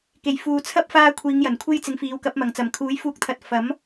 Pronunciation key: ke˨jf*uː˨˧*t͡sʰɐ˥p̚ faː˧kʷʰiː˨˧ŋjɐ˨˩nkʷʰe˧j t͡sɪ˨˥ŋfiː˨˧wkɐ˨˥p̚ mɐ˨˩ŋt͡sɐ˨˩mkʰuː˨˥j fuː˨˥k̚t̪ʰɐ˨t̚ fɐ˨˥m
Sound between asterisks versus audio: correct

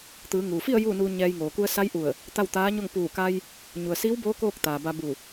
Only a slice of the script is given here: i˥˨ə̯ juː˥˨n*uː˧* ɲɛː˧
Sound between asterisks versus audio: correct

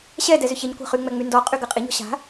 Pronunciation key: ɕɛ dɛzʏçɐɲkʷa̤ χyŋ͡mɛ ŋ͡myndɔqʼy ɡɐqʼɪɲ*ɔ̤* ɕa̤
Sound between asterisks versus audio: correct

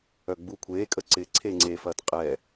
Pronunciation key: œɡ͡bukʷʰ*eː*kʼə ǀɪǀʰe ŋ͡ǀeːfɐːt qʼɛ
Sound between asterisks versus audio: correct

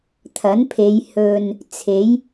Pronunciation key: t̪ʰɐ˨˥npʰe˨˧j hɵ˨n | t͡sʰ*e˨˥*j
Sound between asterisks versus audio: correct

